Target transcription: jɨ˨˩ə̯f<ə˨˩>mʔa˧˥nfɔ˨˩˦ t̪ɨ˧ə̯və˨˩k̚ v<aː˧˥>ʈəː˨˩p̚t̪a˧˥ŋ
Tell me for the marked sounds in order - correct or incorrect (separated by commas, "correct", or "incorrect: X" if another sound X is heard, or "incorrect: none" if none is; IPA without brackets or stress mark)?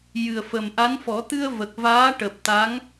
correct, correct